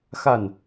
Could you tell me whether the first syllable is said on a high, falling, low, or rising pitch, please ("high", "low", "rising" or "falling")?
falling